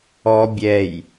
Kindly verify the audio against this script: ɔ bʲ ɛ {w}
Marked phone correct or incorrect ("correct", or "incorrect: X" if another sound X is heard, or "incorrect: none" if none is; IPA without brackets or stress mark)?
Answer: incorrect: j